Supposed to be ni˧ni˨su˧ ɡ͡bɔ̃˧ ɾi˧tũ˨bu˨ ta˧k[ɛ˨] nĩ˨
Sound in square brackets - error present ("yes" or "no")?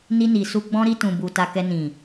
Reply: yes